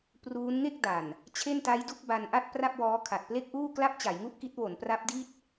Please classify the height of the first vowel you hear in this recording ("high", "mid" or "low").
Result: high